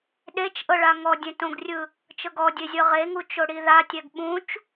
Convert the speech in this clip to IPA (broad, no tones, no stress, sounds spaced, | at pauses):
ɗ e t͡ʃ ʔ ɤ ɭ a ŋ ɔ dʲ ẽ t õ ɡ rʲ ɯ | t͡ʃ ɤ ɡ ɔ dʲ e zʲ ɤ ʁ e ŋ u t͡ʃ o ɽ i ð a tʲ ɛ ɡ ɓ ũ t͡ʃ